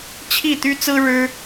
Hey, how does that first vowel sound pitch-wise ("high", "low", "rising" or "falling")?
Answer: falling